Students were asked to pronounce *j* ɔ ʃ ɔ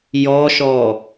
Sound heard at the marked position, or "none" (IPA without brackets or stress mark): j